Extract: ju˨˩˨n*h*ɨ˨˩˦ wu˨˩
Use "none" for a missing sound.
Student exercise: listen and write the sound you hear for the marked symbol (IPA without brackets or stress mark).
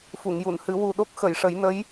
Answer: h